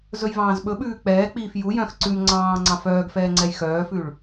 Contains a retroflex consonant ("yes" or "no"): yes